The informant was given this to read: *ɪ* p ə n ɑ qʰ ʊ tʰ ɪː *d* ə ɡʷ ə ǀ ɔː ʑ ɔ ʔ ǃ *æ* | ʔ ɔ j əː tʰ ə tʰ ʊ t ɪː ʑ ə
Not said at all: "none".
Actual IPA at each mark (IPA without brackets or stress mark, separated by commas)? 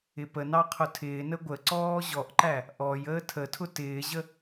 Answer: ɪ, n, æ